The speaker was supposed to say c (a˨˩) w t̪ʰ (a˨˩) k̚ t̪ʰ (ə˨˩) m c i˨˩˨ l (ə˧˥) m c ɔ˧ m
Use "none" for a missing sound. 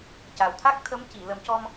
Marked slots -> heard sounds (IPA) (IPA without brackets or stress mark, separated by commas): a˨˩, a˦˥, ə˧˥, ə˨˩˦